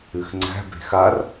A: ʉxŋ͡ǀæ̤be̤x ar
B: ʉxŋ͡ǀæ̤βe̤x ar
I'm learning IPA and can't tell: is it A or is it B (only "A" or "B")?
A